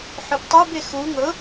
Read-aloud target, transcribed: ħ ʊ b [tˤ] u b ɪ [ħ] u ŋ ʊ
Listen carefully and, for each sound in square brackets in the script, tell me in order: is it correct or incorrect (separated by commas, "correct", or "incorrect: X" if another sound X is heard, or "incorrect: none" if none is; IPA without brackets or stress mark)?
correct, incorrect: x